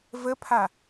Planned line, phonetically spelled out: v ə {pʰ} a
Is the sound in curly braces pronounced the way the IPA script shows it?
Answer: yes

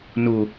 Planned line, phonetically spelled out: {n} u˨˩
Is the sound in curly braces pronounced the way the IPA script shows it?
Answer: yes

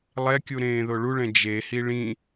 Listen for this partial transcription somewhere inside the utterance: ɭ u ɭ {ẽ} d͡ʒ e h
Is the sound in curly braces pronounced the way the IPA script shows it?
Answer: no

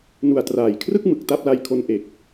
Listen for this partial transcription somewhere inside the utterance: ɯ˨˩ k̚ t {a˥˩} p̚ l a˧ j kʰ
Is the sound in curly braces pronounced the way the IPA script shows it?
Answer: yes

